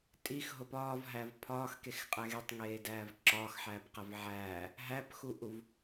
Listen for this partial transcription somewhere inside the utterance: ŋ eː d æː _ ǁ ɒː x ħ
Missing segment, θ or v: v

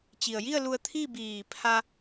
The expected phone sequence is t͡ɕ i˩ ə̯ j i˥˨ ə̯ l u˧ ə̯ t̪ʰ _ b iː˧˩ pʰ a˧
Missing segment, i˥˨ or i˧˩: i˥˨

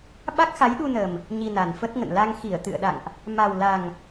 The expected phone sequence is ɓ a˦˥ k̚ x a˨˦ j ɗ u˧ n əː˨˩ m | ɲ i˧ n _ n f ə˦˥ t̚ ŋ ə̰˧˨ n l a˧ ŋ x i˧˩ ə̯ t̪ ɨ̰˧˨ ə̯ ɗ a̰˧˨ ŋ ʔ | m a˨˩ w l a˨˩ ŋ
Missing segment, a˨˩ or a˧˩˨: a˨˩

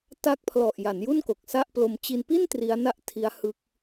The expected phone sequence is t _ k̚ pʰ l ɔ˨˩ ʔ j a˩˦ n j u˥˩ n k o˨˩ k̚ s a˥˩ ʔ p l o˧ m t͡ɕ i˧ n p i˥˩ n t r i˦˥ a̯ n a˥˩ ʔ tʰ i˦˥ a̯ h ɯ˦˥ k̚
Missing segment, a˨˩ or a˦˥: a˦˥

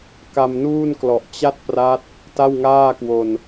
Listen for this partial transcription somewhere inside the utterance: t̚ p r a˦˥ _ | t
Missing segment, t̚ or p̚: t̚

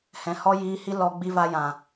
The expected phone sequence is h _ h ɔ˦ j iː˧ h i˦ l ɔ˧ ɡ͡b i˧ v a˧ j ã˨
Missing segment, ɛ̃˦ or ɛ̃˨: ɛ̃˨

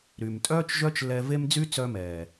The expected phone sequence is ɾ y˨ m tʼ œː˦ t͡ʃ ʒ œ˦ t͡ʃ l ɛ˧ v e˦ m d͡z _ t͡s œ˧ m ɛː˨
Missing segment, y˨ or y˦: y˦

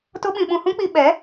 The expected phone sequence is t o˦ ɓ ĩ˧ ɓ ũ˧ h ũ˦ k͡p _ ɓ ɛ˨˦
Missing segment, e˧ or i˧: i˧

